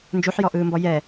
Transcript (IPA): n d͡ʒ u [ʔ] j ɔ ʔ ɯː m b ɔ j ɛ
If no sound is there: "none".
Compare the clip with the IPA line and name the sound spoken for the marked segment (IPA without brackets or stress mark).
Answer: ħ